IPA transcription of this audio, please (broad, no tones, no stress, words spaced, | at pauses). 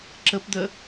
ǁəpd̪ə